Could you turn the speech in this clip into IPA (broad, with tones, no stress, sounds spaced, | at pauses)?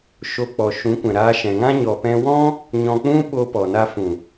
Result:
ʃ o˧ k͡p ɔ˨ ʃ ũ˨˦ kʷ ɛ̃˨ ɾ aː˧ ʃ ɛ̃˨ ŋ ã˦ ɲ ɔ˨ p ɛ̃˧ w ɔ̃˦ | ɲ ɔ̃˧ k͡p ũ˦ ɓ o˧ p ɔ˨ n a˧ f ũ˨